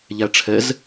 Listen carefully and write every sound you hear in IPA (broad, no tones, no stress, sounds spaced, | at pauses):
ʎ æ ʈ͡ʂʰ ɛ z